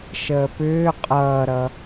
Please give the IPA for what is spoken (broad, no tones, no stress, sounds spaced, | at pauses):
ʃ əː p ʏː qʼ ʌː ɾ ʌ